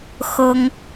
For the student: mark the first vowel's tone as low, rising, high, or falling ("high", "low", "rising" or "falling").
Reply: high